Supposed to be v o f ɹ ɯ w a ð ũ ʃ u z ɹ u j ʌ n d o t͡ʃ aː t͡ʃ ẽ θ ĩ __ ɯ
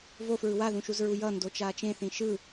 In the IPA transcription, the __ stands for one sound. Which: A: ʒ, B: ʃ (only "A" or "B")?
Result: B